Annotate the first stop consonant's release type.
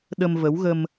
implosive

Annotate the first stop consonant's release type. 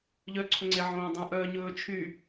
click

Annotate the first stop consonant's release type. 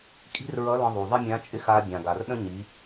ejective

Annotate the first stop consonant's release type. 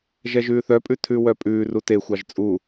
ejective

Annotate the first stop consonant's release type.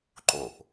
click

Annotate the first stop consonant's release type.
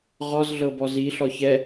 plain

